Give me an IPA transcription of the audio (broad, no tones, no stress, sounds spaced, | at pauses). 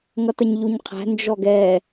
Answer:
ŋ ʌ t ə ɲ ʎ u ɲ qʰ æ̤ n d͡ʒ ɔ ɡ ɛ